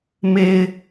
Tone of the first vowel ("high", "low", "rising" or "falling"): low